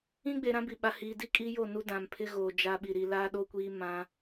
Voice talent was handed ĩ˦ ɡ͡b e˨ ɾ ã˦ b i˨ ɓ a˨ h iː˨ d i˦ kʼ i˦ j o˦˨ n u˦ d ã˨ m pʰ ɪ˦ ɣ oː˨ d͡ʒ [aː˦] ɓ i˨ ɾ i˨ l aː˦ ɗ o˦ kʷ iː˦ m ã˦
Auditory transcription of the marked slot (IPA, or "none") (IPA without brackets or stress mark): a˦